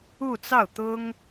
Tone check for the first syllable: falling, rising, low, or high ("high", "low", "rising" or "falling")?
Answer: falling